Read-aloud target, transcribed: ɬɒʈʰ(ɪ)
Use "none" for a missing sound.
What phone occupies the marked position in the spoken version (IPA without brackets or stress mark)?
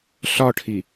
i